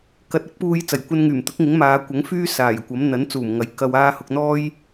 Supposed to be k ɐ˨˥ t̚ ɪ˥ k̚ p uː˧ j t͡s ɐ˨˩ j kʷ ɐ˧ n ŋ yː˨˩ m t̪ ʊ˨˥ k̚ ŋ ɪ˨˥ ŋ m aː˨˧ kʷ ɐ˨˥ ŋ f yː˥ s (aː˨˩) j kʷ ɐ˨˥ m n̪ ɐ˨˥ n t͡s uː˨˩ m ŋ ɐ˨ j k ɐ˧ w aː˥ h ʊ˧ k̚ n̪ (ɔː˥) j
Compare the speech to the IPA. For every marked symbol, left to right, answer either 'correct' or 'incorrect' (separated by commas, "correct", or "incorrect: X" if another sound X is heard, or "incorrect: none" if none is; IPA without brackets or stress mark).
correct, correct